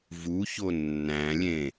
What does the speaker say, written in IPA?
v u ç o nː æ̃ lʲ ẽ

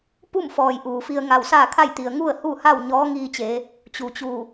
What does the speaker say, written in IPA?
p u˥˨ m f ɔː˩ j ʔ uː˩ f i˧ ə̯ ŋ a˧˩ w s aː˥˨ kʰ a˥˨ j t̪ i˩ ə̯ ŋ u˥˨ ə̯ h u˥˨ h a˥˨ w ɲ ɔː˧˥ ŋ iː˧ t͡ɕ e˩˧ | t͡ɕ u˩ t͡ɕ u˧˩

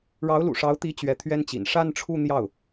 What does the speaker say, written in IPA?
ɻ ɑ˧˥ ʊ̯ l ṵ˨˩ ʂ ɑ˧˥ ʊ̯ t̪ i˧˥ t͡ɕ ɥ ɛ˧˥ t̪ʰ ɥ ɛ˥ n t͡ɕ ḭ˨˩ n ʂ a˥˧ n ʈ͡ʂʰ u˥˧ n̪ j ɑ˥˩ ʊ̯

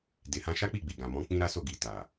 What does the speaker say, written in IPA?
d e˨ h ã˧ ʃ a˦ k͡p i˦˨ ɡ͡b i˨ ɡ ã˨ m ɔ̃˨˦ k͡p ĩ˦ ɾ a˦ s o˦˨ ɡ i˨ t a˨

